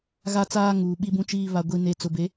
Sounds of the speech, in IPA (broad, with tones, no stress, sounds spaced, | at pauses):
ɣ a˦ t͡s aː˦ ŋ uː˨ ɓ i˦ b ũ˦ t͡ʃ iː˦ β a˦ ɡʷ i˦ n e˦ t͡s ʊ˨ b e˨˦